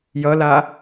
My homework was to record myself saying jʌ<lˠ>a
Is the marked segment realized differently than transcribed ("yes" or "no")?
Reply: yes